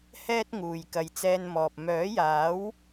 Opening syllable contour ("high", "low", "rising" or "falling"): high